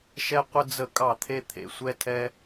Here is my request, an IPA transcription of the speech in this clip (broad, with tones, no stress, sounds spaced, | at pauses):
ʃ ɛ˦ qʷ ə˦ d͡z ə˦˨ kʼ ɑ˦˨ t̪ʰ e˧ t̪ʰ ḛ˨ sʷ ɛ˦ tʰ ɛ˦